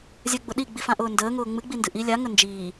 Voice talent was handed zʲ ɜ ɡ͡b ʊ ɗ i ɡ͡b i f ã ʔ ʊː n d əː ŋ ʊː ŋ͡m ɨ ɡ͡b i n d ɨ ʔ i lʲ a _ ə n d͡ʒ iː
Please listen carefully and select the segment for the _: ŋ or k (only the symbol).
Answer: ŋ